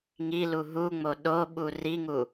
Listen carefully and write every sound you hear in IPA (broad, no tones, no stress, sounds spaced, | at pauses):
ŋ i l u ɦ u ŋ͡m o ɗ o ɓ u r i ŋ u